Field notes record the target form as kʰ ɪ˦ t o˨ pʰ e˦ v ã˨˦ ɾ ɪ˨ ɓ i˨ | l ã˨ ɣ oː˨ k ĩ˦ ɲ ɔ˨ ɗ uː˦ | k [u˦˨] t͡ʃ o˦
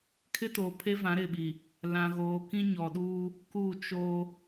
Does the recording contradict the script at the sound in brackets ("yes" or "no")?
no